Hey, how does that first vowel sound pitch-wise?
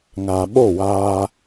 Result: low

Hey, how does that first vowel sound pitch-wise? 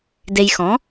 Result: low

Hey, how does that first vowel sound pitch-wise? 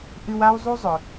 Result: high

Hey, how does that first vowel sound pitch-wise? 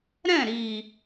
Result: falling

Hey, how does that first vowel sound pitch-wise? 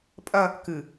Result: high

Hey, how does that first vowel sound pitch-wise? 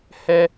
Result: high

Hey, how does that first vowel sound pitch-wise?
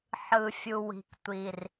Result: low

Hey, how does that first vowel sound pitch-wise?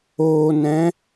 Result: low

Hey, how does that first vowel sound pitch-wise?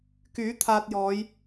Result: rising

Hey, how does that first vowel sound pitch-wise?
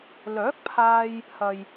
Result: rising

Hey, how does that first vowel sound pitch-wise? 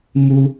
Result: high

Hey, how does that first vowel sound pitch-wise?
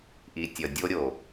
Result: low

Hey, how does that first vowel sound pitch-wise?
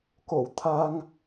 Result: low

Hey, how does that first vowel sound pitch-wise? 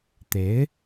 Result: rising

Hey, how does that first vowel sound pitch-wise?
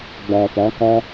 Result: low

